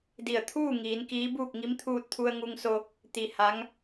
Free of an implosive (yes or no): yes